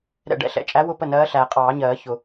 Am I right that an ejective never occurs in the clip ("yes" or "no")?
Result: no